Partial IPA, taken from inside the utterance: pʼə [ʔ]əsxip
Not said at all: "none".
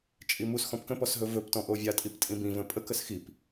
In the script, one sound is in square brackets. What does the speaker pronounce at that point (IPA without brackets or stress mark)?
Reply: k